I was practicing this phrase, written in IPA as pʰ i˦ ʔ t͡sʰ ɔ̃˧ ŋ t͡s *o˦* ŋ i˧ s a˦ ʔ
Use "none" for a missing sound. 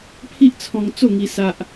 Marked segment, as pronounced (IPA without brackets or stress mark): o˥˧